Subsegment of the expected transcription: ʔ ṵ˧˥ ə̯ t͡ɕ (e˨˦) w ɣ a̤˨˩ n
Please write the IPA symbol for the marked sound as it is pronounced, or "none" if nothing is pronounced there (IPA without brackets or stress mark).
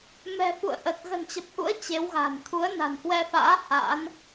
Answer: e˨˦